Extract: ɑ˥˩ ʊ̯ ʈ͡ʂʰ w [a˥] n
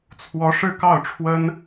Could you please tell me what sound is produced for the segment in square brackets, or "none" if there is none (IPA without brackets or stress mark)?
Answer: ə˥